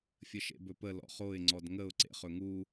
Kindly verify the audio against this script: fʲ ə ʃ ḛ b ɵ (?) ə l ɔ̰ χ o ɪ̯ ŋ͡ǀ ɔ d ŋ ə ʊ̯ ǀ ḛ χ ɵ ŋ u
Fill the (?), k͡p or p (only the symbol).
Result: p